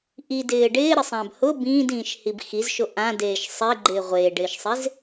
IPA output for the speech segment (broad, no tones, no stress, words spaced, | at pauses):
ʔidɪː ɖɪːɾɪsˤãb hʊ bĩːdĩːʃhib xizʃo ʔãdeːʃ sˤeɡ͡ǃɪː ʁʷeːɖɪːʃsˤez